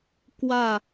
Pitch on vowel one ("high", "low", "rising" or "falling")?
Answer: falling